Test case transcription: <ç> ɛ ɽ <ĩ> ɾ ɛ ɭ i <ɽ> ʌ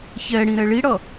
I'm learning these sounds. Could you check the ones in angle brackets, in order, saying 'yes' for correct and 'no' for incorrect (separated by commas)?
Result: yes, yes, yes